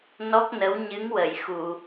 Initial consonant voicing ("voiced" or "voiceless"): voiced